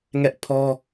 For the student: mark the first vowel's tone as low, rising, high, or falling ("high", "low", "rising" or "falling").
high